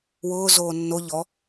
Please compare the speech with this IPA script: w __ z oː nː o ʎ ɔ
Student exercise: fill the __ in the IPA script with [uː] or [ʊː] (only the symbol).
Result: ʊː